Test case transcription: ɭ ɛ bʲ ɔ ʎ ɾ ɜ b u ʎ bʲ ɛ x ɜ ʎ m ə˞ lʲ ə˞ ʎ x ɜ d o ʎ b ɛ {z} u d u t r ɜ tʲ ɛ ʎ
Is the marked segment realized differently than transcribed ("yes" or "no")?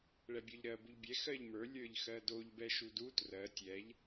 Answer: yes